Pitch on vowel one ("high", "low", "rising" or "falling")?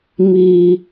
low